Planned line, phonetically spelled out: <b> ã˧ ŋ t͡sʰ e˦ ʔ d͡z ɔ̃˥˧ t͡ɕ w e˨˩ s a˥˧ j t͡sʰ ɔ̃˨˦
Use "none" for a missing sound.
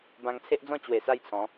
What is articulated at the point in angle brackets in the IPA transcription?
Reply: b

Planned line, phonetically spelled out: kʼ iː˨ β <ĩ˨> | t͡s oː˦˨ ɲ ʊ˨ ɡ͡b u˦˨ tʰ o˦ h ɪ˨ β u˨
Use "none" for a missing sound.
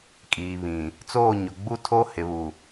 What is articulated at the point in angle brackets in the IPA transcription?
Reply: ĩ˨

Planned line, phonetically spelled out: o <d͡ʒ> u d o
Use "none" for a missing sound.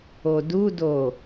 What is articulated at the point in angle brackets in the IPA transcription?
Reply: d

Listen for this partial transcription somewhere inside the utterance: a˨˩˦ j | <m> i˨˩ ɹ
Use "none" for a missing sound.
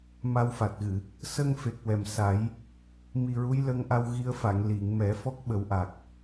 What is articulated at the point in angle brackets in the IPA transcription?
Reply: m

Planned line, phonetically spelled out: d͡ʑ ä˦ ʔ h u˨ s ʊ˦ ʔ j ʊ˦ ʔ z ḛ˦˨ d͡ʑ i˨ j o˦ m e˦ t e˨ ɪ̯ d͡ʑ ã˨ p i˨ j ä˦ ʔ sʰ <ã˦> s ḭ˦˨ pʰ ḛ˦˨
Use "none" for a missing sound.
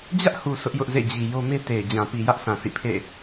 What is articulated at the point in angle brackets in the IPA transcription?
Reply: ã˨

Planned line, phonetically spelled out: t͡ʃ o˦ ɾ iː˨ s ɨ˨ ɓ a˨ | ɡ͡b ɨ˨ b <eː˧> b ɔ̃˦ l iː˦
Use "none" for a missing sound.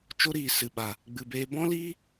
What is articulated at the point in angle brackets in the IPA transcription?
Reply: eː˧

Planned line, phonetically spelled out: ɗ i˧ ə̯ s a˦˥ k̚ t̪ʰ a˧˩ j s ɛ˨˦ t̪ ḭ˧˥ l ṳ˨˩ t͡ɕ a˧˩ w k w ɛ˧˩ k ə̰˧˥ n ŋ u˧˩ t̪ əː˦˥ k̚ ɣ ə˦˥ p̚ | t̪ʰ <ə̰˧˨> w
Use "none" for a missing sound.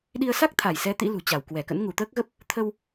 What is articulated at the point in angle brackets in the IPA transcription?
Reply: ə˧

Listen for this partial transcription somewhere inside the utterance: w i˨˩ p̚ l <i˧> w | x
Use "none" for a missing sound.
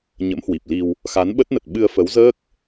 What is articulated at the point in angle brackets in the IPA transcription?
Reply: i˧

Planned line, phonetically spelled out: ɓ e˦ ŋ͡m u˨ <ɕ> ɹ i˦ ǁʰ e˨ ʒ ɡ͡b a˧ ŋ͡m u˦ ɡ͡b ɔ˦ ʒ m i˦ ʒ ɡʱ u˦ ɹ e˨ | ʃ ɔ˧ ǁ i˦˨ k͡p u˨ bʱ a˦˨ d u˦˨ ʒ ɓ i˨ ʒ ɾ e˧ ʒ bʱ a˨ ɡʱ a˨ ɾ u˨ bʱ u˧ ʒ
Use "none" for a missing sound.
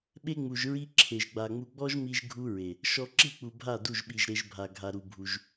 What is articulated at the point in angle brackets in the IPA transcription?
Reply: ʒ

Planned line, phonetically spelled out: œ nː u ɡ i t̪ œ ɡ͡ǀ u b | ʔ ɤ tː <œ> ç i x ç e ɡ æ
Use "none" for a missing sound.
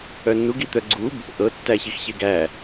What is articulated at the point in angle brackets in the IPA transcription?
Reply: æ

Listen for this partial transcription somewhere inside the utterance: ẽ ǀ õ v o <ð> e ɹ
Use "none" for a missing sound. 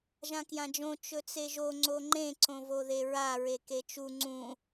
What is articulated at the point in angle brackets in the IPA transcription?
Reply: ð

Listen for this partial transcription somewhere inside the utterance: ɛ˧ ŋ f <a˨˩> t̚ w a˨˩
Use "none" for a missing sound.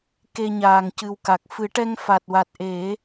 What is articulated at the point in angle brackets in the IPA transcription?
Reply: a˨˩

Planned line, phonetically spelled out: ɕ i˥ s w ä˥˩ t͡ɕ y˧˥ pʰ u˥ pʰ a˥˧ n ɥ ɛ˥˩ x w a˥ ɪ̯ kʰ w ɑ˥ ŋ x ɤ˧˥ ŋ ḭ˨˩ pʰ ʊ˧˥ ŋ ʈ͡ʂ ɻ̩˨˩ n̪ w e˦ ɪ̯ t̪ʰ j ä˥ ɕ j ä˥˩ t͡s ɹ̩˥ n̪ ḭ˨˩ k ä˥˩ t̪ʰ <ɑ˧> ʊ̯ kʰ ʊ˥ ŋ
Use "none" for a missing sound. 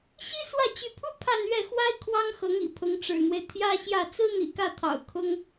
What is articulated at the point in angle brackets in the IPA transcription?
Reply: ɑ̰˨˩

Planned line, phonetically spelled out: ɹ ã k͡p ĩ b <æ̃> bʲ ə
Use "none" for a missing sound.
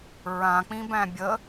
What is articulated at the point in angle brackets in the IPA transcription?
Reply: æ̃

